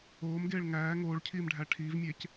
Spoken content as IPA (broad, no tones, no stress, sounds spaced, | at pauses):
oː m ɡ eː ɭ ŋ æː ŋ oː ɭ cʰ iː m ɖʱ æ ʈʰ iː v mʲ e c